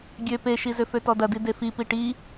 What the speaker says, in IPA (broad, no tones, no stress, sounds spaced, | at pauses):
ɡʲ ø p e ʃ i z ʏ f ø t ɔ d ɐ d i d e f i p i ʈ i